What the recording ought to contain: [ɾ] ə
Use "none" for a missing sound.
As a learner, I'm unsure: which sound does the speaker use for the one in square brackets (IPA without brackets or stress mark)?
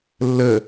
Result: lː